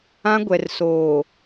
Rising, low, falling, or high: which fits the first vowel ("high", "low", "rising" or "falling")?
high